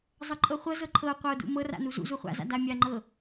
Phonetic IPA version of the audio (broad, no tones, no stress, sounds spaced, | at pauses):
zˤ ʌ ǃʼ ɤ χʷ ɤ z ɤ ǃʰ ɤ qʷ ʌ o̯ d ṵ m ɤ r a̰ n u z ṵ z u χʷ a̰ z a̰ d a mʲ a ŋ͡ǃ ɤ